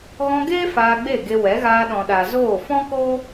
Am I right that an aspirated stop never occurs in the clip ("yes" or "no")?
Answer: yes